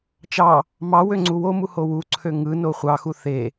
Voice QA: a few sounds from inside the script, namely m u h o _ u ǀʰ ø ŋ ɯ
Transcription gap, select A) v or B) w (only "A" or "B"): B